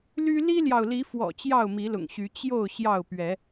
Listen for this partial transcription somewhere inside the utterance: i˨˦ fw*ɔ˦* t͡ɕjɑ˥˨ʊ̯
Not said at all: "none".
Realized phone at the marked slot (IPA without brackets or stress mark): ɔ̰˨˩